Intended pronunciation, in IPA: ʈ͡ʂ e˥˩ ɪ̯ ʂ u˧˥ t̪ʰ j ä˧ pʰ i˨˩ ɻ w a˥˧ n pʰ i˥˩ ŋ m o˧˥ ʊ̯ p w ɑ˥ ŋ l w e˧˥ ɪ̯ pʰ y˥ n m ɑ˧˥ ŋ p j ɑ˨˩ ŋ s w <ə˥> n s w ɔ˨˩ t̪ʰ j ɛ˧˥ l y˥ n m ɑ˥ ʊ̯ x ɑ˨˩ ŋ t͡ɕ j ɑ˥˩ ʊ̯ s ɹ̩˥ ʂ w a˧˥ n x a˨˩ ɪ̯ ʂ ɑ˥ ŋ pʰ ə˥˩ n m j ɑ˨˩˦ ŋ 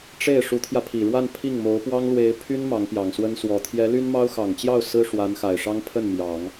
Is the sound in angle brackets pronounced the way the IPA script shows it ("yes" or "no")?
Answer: yes